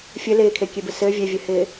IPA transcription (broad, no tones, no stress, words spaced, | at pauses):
fʲɘ lɪːkʰekʲebɘ sɘː vʲevʲɘhɪː